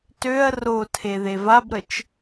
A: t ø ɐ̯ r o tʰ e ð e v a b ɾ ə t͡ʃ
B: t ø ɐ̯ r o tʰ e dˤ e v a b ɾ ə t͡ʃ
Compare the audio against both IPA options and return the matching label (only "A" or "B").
A